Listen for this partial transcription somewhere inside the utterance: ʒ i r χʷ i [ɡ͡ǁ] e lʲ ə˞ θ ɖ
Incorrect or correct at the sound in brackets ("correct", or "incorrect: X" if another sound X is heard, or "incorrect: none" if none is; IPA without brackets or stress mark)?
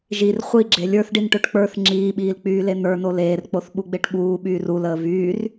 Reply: correct